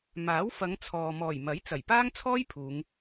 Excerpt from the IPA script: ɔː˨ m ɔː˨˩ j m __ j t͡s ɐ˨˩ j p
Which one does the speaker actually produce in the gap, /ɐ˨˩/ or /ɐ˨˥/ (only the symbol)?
ɐ˨˥